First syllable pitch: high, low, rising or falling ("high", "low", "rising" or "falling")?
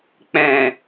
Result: low